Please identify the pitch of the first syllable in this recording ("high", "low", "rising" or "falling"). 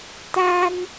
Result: high